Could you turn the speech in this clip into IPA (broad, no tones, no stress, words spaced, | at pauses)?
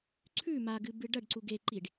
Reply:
ǀʰʉ maɡɨbɨ ɖɐɖǀu ɡeǃiɖ